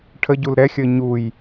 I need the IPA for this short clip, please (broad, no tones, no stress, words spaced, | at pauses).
ʈʰəɟul ɾɛxʲəː ɲuj